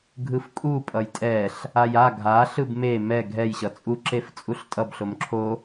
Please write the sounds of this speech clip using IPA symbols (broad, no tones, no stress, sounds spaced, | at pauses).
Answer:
ɡʱ ɯ f kʼ u pʼ ʌ j tʼ ɛ ɬ | a j a ɡʱ a ɬ ɯ b m e m ɛ ɡʱ ɛ j ɕ ʌ t͡sʼ u ǁ e f t͡sʼ u ɬ tʼ ʌ b ɬ o m ǁʰ o